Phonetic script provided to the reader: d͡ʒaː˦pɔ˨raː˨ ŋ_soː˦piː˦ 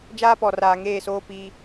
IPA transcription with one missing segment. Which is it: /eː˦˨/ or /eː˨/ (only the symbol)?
eː˦˨